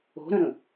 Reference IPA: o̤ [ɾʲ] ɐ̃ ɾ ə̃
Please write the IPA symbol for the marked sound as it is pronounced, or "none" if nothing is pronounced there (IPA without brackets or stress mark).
ɾ